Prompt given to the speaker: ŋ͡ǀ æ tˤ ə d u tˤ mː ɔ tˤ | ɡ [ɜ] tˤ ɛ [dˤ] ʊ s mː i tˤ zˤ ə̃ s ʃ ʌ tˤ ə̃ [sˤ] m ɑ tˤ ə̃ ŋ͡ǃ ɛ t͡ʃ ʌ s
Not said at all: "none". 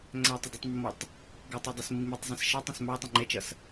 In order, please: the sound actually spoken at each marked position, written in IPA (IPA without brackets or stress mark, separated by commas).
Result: ɜ, dˤ, s